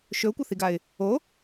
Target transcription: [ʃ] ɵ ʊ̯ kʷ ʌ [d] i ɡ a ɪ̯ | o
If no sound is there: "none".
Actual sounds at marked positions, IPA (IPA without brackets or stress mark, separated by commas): ʃ, θ